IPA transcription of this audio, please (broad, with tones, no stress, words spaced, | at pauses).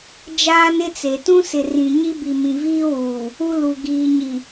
d͡ʒaː˦nɪ˦t͡se˨ tũ˦sɪ˨ rĩ˨ɲi˦bi˨mĩ˨ viː˦wuː˨ | u˦ lu˨ ɡiː˨ɲi˨